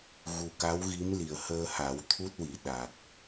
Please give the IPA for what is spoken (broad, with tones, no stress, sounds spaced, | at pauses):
ɣ u˨˩ k a˧˥ w ɣ i˧˥ m l i˨˩ ə̯ h əː˧ h a˨˩˦ w t̪ʰ u˦˥ t̚ w i˨˩˨ ɗ a˨˩ k̚